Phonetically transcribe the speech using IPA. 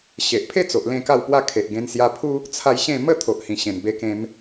ɕe˨ʔpʰe˥˧t͡so˨ʔ lẽ˥˧ka˥˧wpwa˥˧ kʰe˨ʔɡẽ˧nsja˧pʰu˦ | t͡sʰa˧j ɕẽ˥˧ mə˥˧ t̪ʰo˨ʔhĩ˨˩ ɕẽ˨˩nbe˧kẽ˧m

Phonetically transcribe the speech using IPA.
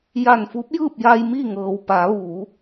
ja˧˩nfu˧˥p̚jɯː˥˨p̚ja˧j mi˥˨ŋɤː˩wpa˩˧ ʋuː˩˧

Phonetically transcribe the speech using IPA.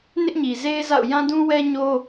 nɪ˦ʔɲi˨ze˦ɪ̯za̰˦˨ʊ̯ jã˦dũ˦wɛ˦ɲo˦

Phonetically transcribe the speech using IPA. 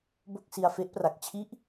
bo˥˩k̚si˧a̯ fe˦˥ʔpra˨˩k̚t͡ɕʰi˥˩ʔ

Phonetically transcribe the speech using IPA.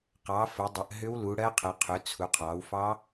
qɑ˩˧ fə˩˧dˤə˩˧ʔ ɦʏ˦˥wlu˩˧ɽɜ˦˥qʰə˩˧ qʰʏ˩˧ t͡sʰu˩˧qʰɑ˩˧wfɑ˦˥

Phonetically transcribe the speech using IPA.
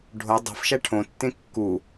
ɖʱo dˤi̤fʃæ ʈʰõtːẽ kːu

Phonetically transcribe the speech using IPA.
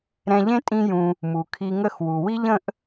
ɾɛ̃˧ʎẽ˥ tʼĩ˥jũ˧ | mu˩kʰi˧ŋə˥xwu˩ wi˥ʎə̃˥ʔ

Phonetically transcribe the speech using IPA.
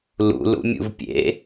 lṵ lṵmʲṵvpʲḛ

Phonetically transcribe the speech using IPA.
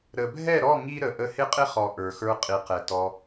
ɾə˨bʱɛ˦˨ɾɔ˦˨ ŋi˦ɾə˨ ʔə˧hɪ˦qʼɪ˦χɔ˨ ʔə˞˨xə˞˧ qʼi˨qɛ˨tɔ˧

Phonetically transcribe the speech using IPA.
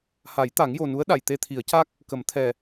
ha˨˩˦jt̪a˨˩˦ŋjo˨˩nu˧˥ə̯ ɗa˨˩˨jt̪e˧t̪ʰi˨˩˦ə̯ca˦˥k̚ | kə˨˩˦m t̪ʰɛ˨˩

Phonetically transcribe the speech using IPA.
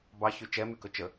bɑçy t͡ʃɛmykɵ t͡ʃə

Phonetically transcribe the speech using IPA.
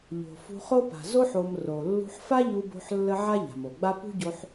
ʎo̤˨ fṳ˧χo˦pa̤˨ zo˦ħ o˧m ro˨ lːṳ˧ħfa˦ʎu˧bo̤˧ħ lːə˦ ʕa˦ʎa̤˨mo˨ɡ͡ba˦ pṳ˦ɟo˧ħ

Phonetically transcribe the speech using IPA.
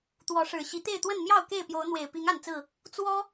t̪wɔ˨˦ ʂɻ̩˨˩ɕi˨˦ t̪e˥˨ɪ̯t̪wə˥˨n mjɑ˥˨ʊ̯ ke˥˨ɪ̯pjo˨˦ʊ̯n̪we˨˩ɪ̯ pi˨˦ŋ a˥˨nt͡sɹ̩˥˨ | t͡swɔ˦

